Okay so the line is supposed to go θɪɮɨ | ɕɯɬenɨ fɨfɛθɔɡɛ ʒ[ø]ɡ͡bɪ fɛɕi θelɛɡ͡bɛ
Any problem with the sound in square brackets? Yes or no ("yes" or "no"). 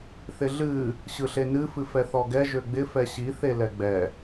no